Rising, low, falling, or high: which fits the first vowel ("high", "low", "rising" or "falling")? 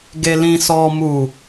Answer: low